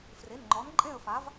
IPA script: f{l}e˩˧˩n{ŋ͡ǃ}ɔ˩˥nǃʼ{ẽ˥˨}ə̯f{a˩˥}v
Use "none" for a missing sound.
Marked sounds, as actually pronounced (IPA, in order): r, ŋ͡ǃ, ẽ˥˨, a˩˥

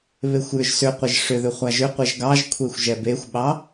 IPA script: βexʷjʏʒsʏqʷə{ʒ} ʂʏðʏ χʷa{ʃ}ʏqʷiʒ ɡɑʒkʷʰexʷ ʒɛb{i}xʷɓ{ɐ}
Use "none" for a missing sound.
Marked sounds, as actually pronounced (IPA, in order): ʒ, ʒ, e, ɑ

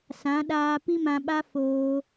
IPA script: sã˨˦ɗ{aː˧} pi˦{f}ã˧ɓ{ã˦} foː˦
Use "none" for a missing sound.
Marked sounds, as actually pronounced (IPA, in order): aː˧, m, a˦

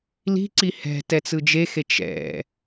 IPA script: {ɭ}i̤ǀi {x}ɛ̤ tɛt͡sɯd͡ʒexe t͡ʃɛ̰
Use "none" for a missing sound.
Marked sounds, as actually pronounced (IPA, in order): l, h

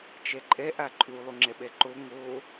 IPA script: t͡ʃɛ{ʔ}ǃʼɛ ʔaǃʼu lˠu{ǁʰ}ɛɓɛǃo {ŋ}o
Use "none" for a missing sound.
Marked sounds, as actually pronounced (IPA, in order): none, ŋ͡ǁ, ŋ

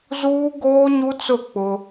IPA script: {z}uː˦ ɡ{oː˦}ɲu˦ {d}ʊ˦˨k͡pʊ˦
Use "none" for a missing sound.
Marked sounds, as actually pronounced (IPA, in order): z, oː˦, t͡s

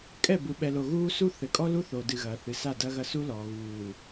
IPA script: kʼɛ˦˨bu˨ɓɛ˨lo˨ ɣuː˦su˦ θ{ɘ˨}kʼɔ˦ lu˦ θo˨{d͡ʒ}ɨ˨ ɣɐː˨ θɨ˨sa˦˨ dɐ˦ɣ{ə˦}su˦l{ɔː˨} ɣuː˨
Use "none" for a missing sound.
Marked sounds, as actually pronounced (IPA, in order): ɘ˨, d, ɐ˦, ɔː˨

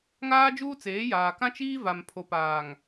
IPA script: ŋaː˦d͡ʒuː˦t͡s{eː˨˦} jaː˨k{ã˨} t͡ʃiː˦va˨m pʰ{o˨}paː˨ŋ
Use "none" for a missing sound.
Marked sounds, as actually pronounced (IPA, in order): eː˨˦, ã˦, o˨

